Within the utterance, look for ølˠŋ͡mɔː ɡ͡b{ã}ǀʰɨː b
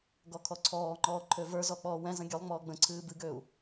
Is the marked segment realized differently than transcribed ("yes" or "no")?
yes